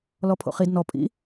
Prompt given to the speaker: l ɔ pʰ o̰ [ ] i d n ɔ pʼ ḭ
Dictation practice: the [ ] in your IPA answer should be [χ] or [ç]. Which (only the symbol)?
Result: χ